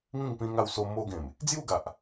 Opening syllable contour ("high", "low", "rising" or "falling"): falling